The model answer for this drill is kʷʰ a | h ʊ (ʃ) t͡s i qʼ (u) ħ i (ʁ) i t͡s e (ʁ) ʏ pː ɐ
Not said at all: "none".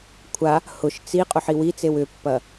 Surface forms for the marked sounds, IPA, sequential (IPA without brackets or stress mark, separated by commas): ʃ, ʊ, w, w